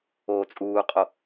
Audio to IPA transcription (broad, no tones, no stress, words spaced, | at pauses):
oːt͡sʼuːqʼo